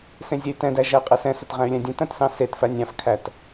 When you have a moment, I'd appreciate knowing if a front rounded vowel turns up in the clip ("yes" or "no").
yes